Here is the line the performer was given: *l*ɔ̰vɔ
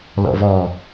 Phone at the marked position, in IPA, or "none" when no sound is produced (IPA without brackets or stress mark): l